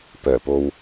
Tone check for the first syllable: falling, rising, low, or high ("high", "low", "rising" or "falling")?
low